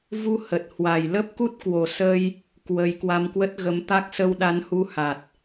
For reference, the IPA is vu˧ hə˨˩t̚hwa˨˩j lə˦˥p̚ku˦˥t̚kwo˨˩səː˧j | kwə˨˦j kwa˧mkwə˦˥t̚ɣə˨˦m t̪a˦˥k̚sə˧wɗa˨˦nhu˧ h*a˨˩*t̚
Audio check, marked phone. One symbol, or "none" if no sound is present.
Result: a˨˩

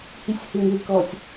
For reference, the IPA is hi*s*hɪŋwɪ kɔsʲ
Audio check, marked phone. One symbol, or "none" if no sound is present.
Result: sʲ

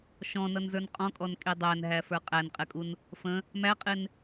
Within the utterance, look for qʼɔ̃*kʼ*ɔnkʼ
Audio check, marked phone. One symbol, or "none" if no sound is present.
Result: kʼ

